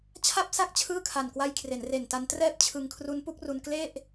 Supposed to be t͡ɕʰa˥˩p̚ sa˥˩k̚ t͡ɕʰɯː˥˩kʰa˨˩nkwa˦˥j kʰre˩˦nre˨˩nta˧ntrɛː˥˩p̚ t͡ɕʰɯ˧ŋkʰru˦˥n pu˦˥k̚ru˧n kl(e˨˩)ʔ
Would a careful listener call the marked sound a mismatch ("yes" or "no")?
yes